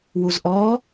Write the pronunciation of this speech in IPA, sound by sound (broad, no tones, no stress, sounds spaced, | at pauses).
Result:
w u z ʔ ɔː